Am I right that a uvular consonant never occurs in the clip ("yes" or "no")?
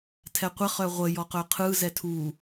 no